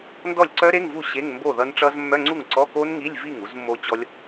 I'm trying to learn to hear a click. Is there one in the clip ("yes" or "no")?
yes